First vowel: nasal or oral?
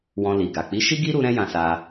nasal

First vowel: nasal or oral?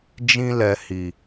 nasal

